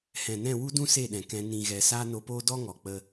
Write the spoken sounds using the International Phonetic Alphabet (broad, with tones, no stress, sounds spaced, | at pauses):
h ɛ̃˨ n ɛ̃˦˨ w u˧ d ũ˧ s e˦˨ ɗ ɛ̃˨ k ɛ̃˧ n ĩ˨ ɣ ɛ˨ s aː˦ n o˧ p oː˦ d ɔ˦ ŋ ɔ˨ k͡p ə˧